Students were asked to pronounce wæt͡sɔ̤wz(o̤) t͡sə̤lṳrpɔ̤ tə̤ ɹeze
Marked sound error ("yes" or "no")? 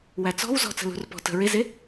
yes